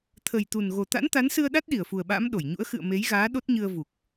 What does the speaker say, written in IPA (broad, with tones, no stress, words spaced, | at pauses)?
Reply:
t̪ʰə˨˩jt̪u˨˩nɣo˨˩ t̪a̰˧˥nt̪a˨˦nsɨ˧ə̯ɗa˦˥t̚ ɗi˧˩ə̯fu˨˩ə̯ɓa̰ː˧˥m ɗo˧˩jɲṵ˧˥ə̯ xɨ̰˧˨ə̯ me˨˦jɣaː˨˦ ɗo˦˥t̚ɲɨ˧ə̯ vu˨˩k̚